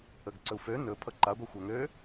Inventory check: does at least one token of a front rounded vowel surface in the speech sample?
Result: yes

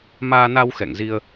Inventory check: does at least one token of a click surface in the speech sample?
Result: no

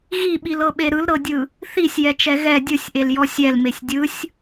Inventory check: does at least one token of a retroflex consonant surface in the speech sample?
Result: no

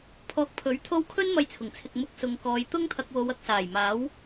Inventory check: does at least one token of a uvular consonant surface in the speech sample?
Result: no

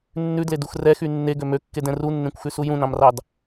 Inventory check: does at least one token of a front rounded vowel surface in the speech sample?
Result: yes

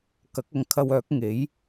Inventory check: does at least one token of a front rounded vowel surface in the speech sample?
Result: yes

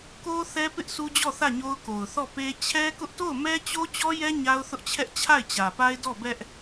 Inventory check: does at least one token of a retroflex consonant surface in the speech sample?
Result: no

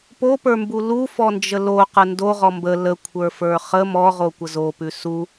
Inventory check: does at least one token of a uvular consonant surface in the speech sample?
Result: yes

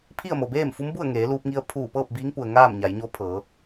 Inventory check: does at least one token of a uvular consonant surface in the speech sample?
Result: no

